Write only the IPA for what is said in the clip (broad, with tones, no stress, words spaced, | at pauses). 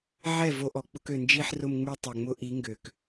ʕɛ˦˨vo˧ʔɔ˨k͡pʊ˧k ø˨nd͡ʒi˧ħrʊ˧mŋ͡my˧ tˤɛ˨ŋ͡mʊ˦ʔi˨˦ ŋɡø˨k